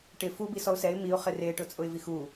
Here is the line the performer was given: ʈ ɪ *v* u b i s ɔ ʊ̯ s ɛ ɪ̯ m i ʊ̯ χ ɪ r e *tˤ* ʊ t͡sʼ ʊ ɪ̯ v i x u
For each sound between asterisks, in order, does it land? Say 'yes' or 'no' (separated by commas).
no, no